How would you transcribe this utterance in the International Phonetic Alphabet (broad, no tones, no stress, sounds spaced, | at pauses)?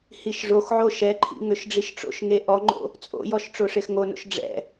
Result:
h i ʃ ʐ o x ʕ o ʃ ɛ ǃʰ ḭ ŋ ø ʃ ɖ͡ʐ i ʃ ʈ͡ʂ o̰ ʃ ŋ e ʔ ɔ ŋ͡ǃ o̰ | t͡sʼ o̰ j ɔ ʃ ʈ͡ʂ o ʂ e x ŋ o n o̰ ʃ ɖ͡ʐ ɛ̰